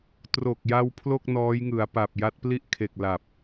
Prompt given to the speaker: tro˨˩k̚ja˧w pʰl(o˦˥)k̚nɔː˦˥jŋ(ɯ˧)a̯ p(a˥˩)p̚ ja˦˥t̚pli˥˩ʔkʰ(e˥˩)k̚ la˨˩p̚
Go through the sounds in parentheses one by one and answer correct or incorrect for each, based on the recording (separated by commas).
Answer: incorrect, incorrect, incorrect, incorrect